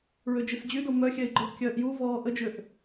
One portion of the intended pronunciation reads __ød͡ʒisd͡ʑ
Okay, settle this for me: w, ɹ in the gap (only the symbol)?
ɹ